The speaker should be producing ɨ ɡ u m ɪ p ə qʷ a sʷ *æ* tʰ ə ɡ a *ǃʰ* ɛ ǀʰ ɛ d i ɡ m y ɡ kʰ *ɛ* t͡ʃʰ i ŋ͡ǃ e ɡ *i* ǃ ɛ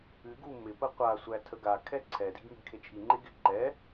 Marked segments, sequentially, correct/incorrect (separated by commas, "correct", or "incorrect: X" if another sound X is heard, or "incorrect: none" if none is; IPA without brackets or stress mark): correct, incorrect: kʰ, incorrect: e, incorrect: ɪ